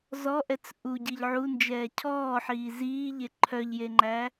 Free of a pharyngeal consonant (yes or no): no